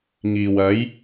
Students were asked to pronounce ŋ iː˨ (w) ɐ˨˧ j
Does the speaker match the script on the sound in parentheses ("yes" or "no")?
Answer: yes